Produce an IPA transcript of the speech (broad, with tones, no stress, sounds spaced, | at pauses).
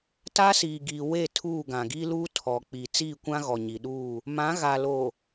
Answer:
t a˦ s iː˨ ɡ iː˨ w e˦˨ tʰ uː˦˨ ɡ ã˨ ɡ i˦ l uː˦ tʰ ɔ˨ k͡p i˨ t͡s iː˦˨ kʷ ã˦ ɣ ɔ˨ ɲ i˨ ɗ uː˦˨ | m ã˨˦ ɣ a˨ l o˨